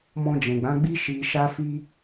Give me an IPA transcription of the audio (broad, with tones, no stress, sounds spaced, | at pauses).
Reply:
m ɔ̃˧ d͡ʒ ɛ̃˨ ɡ͡b ã˨˦ ɡ͡b i˦ ʃ i˧ ʃ a˦ f i˦